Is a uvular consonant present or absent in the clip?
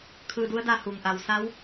absent